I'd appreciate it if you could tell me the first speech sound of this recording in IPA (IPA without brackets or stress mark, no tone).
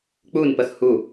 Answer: k͡p